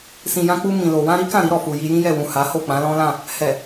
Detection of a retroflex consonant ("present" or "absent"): absent